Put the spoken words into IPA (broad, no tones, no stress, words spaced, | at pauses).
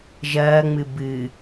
ʒɐːŋ͡mɨ bɨ